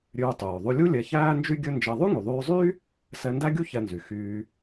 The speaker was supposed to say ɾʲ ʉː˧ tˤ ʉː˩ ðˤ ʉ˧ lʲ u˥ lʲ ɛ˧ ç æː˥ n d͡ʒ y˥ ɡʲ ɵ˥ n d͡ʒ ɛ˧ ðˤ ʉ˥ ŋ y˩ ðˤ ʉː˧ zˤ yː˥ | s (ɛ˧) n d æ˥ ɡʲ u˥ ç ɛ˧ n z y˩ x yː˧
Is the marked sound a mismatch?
no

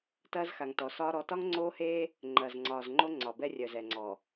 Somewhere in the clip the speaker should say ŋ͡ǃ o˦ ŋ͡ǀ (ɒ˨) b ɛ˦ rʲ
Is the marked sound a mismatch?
no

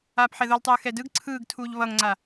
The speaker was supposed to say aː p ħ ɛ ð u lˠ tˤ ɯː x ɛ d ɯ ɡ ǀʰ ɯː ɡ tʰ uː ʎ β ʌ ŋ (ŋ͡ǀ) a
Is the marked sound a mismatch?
no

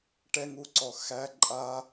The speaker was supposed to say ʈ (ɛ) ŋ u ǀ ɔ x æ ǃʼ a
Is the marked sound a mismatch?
no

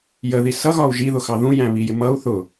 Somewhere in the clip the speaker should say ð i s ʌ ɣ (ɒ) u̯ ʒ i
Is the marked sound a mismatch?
no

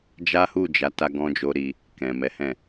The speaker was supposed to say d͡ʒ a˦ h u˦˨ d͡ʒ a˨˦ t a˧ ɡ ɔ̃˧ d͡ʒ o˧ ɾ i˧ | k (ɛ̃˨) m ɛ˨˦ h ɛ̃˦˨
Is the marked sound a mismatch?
no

